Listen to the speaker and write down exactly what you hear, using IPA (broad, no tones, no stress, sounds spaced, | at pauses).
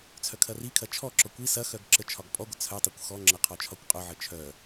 t͡sʰ œ kʰ ɐ r i kʰ ɐ t͡ʃʰ ɔ ǁ ɔ kʷ i s ɐ x œ ɡ ǁ ə t͡ʃʰ ɒ ɡ pʼ ɔ ɡʷ ə t͡sʰ œ tˤ o kʷ x ɔ ŋ͡ǁ ɐ qʰ ɒ t͡ʃʰ ɒ kʷ qʼ œ ʕ ə t͡ʃʰ œ